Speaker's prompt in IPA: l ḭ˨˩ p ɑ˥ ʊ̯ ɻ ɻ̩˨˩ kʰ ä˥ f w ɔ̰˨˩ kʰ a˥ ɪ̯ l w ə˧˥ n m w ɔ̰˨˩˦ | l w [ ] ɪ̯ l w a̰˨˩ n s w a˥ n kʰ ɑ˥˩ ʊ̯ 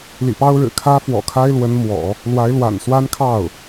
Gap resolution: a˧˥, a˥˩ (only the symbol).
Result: a˧˥